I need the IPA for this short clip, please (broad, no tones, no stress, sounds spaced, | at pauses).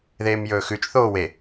ð eː m j ɵː x ʉ t͡ʃ θ oː w e